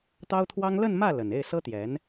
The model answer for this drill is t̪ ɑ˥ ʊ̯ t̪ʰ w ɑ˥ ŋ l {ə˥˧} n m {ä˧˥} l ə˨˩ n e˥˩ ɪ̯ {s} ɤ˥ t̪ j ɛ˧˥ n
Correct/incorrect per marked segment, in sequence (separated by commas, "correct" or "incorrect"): correct, incorrect, correct